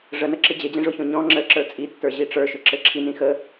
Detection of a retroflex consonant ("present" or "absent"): present